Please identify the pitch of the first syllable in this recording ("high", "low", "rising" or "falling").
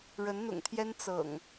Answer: rising